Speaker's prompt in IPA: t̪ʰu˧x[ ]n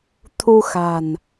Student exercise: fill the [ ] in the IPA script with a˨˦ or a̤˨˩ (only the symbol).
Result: a̤˨˩